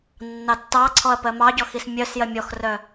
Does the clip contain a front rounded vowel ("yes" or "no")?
yes